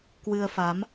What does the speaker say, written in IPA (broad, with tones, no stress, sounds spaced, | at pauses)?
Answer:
k w ɨ˧ ə̯ f a˨˦ m